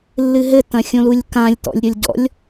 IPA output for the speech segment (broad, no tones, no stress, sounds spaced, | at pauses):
lː ɨ ɦ ɘ t ɐ̃ xʲ õ l u lʲ k ã lʲ t ɔ̰ lʲ ɾʲ o lʲ ɟ ɔ̰ lʲ